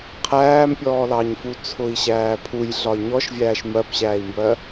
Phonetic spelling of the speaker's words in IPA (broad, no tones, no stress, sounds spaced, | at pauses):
qʰ æː m pʲ ɔː l ɑ ɲ f u t͡sʰ ʊ i̯ ɕ æː pʰ u j ɮ ɒ i̯ ɲ ɔ ʃ vʲ æː ʃ m ɜ p ɕ æː i̯ m b ɜ